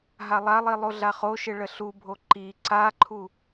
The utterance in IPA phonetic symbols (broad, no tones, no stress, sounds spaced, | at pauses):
ɦ a lˠ a lˠ i lˠ o ɮ a χ o ʃ ɪ ɭ ə ɬ u bʱ o ǃ i ǀ a ǃʰ u